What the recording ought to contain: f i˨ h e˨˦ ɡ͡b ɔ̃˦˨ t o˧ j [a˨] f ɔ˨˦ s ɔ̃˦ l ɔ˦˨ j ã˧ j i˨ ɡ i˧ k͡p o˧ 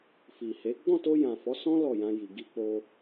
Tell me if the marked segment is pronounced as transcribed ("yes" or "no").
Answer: no